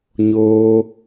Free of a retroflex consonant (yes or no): yes